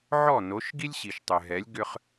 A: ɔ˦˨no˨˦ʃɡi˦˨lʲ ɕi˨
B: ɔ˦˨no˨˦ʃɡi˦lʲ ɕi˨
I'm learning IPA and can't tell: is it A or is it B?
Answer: B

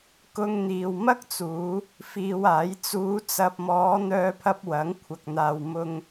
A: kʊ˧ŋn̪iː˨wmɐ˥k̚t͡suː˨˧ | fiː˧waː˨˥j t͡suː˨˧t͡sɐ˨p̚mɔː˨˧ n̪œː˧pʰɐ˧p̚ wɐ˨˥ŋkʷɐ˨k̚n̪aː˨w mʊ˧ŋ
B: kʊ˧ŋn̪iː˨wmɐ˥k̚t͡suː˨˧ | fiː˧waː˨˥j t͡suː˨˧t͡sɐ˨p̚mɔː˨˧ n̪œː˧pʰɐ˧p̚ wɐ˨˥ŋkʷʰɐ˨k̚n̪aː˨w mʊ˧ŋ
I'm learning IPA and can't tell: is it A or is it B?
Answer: B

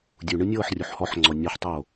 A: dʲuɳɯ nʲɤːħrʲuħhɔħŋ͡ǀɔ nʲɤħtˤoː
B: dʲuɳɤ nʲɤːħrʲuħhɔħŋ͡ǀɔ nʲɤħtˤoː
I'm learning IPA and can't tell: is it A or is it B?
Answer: A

